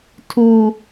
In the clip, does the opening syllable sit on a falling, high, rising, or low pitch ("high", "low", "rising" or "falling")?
high